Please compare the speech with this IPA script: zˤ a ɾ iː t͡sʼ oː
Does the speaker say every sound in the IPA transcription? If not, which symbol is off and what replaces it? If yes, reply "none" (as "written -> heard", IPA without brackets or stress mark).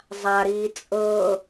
oː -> ɤː